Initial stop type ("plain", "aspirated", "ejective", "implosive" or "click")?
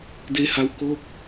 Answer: plain